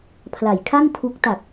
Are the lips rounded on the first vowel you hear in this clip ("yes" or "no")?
no